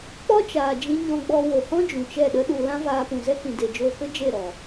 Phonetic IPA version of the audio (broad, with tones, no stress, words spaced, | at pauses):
k͡pɔ˦t͡ʃaː˨d͡ʒĩ˧ ɲɔ̃˧ɡ͡bɔ˧ wo˨hɔ̃˦ d͡ʒũ˨t͡ʃɛ˦˨ɗə˦ɗu˧ lã˦vaː˧pũ˨ zɛ˦kĩ˨de˨ d͡ʒoː˧kə˦ d͡ʒe˦˨ɾɔ˨